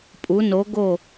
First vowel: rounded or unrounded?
rounded